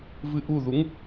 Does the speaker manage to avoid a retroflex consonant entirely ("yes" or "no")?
yes